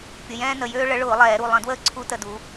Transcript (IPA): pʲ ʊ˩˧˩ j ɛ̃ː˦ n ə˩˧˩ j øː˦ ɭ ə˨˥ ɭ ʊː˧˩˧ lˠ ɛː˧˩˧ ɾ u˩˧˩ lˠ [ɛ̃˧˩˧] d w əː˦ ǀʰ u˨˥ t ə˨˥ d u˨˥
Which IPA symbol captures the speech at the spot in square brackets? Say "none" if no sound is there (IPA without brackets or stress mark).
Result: ə̃˧˩˧